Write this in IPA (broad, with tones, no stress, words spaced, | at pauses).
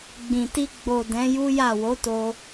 ɡ͡bĩ˨ti˧ ɡ͡bo˨ dɛ̃˨˦ju˦ja˦˨ wo˨˦to˧